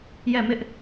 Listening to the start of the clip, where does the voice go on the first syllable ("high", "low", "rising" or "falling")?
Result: falling